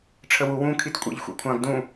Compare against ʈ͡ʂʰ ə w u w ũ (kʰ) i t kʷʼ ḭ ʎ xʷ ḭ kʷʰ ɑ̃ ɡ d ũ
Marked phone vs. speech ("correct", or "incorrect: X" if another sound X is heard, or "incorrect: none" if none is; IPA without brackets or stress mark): correct